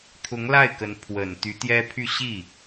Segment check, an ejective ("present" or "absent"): absent